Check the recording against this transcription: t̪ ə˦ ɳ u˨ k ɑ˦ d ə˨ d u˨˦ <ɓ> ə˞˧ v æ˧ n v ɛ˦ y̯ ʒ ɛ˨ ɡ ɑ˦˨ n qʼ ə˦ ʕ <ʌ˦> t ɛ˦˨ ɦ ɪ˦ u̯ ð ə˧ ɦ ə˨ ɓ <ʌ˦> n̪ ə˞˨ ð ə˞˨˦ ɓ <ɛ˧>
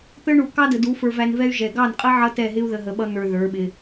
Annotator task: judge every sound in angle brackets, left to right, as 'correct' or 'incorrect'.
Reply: incorrect: f, correct, correct, incorrect: ɪ˧

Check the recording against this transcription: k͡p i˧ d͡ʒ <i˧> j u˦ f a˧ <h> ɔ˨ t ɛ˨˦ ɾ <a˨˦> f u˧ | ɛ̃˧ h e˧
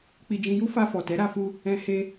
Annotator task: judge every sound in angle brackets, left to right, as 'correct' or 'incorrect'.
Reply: incorrect: ĩ˧, incorrect: f, incorrect: a˧

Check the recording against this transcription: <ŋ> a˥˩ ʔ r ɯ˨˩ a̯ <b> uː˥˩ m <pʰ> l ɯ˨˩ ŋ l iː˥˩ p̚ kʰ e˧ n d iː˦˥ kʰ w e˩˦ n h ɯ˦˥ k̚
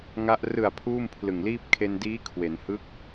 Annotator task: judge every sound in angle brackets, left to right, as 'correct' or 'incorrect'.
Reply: correct, incorrect: pʰ, correct

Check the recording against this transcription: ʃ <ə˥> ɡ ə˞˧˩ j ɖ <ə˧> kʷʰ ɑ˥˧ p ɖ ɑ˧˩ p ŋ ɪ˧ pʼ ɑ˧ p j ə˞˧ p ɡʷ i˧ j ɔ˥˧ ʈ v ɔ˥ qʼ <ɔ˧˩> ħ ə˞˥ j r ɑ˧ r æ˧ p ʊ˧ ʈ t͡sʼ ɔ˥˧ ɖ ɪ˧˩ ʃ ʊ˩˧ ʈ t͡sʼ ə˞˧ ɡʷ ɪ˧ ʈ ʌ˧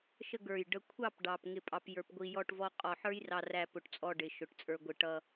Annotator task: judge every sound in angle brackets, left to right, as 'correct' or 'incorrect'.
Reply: incorrect: ə˥˧, correct, correct

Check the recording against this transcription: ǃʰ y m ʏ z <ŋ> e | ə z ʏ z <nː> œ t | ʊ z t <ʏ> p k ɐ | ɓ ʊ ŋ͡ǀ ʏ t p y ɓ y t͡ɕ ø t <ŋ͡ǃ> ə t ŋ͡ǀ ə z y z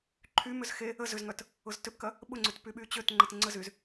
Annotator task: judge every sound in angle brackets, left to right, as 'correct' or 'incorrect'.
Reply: incorrect: x, incorrect: ŋ, correct, correct

